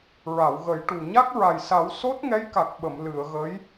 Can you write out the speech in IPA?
ɹa˨˩˨wɣə˨˩˦jʈu˨˩ ɲa˦˥k̚ɹa˨˩jsa˨˩˦w so˦˥t̚ŋɛ˧˥jka˨˩k̚ɓə˨˩˨m lɨ˨˩˨ə̯ɣə˧˥j

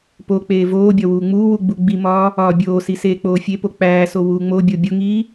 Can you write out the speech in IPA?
pok͡peː voːbʲɒ wuːŋ͡muːwu ɡ͡buɡ͡bimɒː | ɒːbʲoːsi seːk͡poːfʲepo k͡pæːso wuːŋ͡mobʲo bʲoŋiː

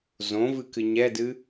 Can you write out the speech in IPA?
zõvɨkɨ ɲɛdɨ

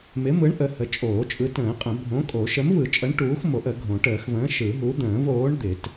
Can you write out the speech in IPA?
mɪ˨˥mɯ˨˥ɳ ʔə˨˥hə˨˥ t͡ʃʼoː˨˩˦t͡ʃʼɯ˨˥tə̃ː˨˩˦qʼə̃˨˩˦ bʱõ˨˥kʼo˨˩˦ ʃə˨˥mvɯ˨˩˦t͡ʃʼə˨˥ɳ ʈuː˨˥xmo˨˩˦ʔə˨˩˦ɡʱõ˨˩˦ ʈəː˨˩˦xvə̃ː˨˥ ʃɯ˨˩˦ɦu˨˥d̪ə̃ː˨˩˦v oː˨˥ɳd̪ɪ˨˩˦t

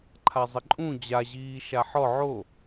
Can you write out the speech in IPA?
ǃʰazˤɪǃʼũ d͡ʑaʑiː ʃaħɔ ʕo

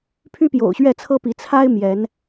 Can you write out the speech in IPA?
pʰy˦pjo̰˨˩ʊ̯ɕɥɛ˥˨ t͡sʰɤ˦pi˨˦ t͡sʰa˦ɪ̯ mjɛ˨˦n

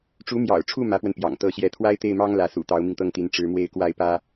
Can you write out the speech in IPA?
ʈ͡ʂu˧˥mjɑ̰˨˩ʊ̯ʈ͡ʂʰu˥˩ mä˧˥pwə˧n pjɑ̰˨˩ŋt̪ɤ˥˧ɕjɛ˥˩ t̪ʰwa˥ɪ̯t̪e˥˩ɪ̯mɑ˥ŋ lä˧˥ sṵ˨˩ t̪ɑ˧˥ʊ̯mi˧ŋt̪ɤ˥˩ŋt̪i˧˥n ʈ͡ʂɻ̩˧˥mwe˥˧ɪ̯ kwa˥˩ɪ̯pä˥

